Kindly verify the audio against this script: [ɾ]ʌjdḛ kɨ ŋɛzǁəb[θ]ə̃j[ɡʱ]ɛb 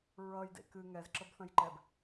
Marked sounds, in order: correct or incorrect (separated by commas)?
incorrect, correct, incorrect